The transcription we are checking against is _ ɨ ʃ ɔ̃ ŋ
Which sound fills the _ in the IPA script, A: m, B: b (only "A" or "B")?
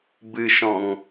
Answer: B